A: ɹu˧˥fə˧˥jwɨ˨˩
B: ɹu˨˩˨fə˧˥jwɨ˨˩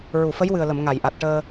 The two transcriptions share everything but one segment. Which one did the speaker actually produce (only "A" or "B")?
B